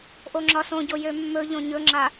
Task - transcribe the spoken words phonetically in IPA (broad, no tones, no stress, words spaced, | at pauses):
ʔoŋ͡ǁɒsõɟo jømːɵʎõ ɲɵŋ͡ǁa